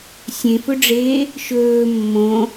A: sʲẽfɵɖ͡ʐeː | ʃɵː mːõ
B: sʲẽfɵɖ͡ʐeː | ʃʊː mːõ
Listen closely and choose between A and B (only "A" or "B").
A